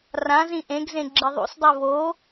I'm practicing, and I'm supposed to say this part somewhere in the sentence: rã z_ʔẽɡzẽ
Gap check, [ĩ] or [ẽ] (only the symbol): ĩ